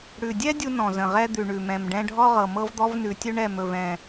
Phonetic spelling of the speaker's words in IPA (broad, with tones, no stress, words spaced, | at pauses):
ɽʉ˨˩dʲɛ˥ dʲu˥nɔ̃˨˩ zə̃˨˩ʁɛ˥ d̪ʉ˨˩ɳʉ˨˩ mɛ̃˨˩mɖɛ̃˥ ɖʱɔ˥ʁɤ˨˩ mɤ˥vd̪ɔ˥vnʉ˨˩ tʲɵ˥ɳɛ˨˩m ɵ˨˩vɛ̃˨˩